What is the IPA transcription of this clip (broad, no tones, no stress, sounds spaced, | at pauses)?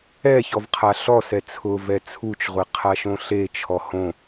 ɛ ç ɔ v qʰ a ɬ ɔ s ɛ t͡sʰ ʊ v ɛ t͡sʰ u t͡ʃ ʁʷ e qʰ a ʃ õ ɬ e t͡ʃʰ ɔ h õ